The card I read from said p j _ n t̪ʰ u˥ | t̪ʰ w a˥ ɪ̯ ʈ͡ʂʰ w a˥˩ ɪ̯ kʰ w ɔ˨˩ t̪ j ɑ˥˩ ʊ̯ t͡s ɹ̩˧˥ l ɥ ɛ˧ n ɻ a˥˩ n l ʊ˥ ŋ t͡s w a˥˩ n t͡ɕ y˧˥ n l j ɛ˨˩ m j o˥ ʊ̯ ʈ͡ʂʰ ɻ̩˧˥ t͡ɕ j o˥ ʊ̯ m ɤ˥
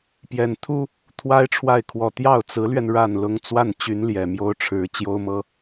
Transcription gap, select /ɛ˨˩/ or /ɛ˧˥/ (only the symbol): ɛ˨˩